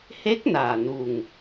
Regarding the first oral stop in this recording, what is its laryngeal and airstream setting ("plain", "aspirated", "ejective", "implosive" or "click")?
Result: plain